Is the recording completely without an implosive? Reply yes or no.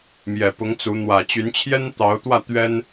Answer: yes